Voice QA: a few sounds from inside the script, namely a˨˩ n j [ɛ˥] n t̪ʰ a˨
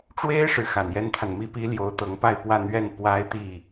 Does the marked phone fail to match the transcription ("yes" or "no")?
no